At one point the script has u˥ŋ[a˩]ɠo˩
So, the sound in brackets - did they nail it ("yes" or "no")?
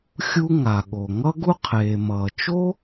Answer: yes